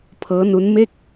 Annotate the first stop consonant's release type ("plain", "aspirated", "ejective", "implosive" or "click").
aspirated